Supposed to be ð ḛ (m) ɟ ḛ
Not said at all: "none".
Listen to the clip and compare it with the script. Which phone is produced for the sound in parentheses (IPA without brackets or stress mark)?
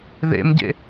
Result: m